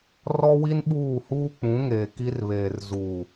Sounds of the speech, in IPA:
r ɔ˦ w i˦ n ɓ uː˦˨ h uː˦ k͡p ũ˨˦ ŋ eː˨ k i˦ r β eː˨ r z u˨

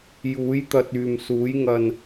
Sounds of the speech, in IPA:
j uː˨˥ j t̪ ɐ˧ t̚ yː˨ m s uː˨˥ j ŋ ɐ˧ n

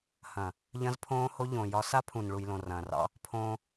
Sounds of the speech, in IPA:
h ɐ̃˨ | ʎ ɐ̃˦ z pʰ õː˦ h o˦ ʎ õ˨ j ɒ˦ s a˦ pʰ ũ˨ n ɭ u˨ j l õ˨ r ɐ̃ː˨ r ɑ̰˦ | pʰ õː˦

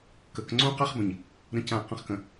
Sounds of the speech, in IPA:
k ə˨ k ŋ͡ǀ õ˦ q a˦ χ b ə̃˨ ɲ | ɾ ə̃˨ c ã˨ q ə̃˨ χ k ə̃˨

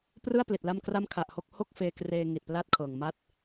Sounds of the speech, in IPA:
p r ɯ˥˩ a̯ p l i˨˩ t̚ l a˥˩ m k r a˥˩ m kʰ a˨˩ ʔ h o˦˥ k̚ h o˥˩ k̚ f eː˧ k r eː˧ ŋ i˨˩ t̚ p l a˥˩ t̚ kʰ ɤː˨˩ ŋ m a˥˩ t̚

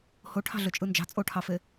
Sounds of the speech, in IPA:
h o ʈʰ ɑ̤ ɮ ø t͡ʃʼ ɯ n d͡ʒ ɑ̤ t͡sʼ o ʈʰ ɑ f e

